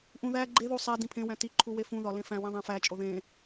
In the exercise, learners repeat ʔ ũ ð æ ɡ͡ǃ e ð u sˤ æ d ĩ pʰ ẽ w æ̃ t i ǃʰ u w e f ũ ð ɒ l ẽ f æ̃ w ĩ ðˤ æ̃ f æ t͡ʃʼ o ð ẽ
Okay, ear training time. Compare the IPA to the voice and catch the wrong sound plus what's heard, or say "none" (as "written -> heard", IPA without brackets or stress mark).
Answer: none